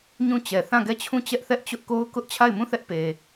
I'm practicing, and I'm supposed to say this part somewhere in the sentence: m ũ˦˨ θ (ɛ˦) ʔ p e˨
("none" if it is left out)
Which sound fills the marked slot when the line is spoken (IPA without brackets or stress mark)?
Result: ɛ˦